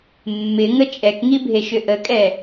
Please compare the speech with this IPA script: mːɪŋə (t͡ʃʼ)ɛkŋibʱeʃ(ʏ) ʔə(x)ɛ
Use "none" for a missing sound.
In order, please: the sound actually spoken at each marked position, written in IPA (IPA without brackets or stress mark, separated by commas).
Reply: t͡ʃʼ, ʏ, kʼ